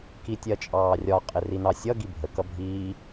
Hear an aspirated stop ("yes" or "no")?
no